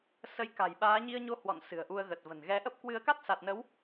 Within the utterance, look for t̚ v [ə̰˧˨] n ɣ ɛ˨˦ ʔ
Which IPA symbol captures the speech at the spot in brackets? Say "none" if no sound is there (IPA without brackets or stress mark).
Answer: ə̤˨˩